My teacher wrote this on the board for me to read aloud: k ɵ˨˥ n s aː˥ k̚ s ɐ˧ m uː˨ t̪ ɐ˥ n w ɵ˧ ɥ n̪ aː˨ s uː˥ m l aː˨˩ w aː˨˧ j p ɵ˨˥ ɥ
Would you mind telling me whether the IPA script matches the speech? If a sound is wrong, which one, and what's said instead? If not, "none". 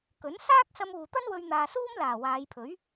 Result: p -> pʰ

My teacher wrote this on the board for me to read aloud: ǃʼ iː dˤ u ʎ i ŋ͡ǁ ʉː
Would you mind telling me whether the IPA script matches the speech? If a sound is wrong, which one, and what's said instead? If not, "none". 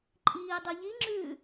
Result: none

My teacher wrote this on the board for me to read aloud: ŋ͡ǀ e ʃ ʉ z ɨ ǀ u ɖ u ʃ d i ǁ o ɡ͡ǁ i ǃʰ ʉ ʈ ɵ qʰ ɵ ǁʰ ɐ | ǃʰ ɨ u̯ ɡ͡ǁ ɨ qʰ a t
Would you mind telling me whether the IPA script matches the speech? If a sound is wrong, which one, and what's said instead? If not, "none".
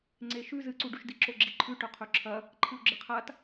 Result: none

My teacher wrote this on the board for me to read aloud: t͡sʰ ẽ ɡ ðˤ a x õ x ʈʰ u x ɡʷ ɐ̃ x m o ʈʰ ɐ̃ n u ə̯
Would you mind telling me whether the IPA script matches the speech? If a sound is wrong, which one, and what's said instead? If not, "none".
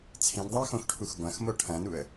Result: none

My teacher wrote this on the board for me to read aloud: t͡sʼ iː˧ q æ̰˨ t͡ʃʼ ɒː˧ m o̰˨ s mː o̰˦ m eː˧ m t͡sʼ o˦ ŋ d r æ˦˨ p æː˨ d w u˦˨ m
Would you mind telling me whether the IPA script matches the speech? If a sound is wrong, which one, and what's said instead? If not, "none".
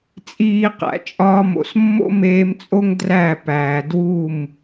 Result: none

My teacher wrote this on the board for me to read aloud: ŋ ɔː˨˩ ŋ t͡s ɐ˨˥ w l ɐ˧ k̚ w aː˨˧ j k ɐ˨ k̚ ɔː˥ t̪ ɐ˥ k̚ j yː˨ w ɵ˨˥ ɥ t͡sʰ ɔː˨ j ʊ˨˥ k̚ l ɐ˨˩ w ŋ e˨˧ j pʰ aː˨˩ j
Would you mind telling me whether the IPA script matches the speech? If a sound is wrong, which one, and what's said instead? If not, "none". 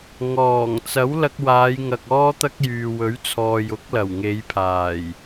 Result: k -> ŋ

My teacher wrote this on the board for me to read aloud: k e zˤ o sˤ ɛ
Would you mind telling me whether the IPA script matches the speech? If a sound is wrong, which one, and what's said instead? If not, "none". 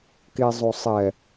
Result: none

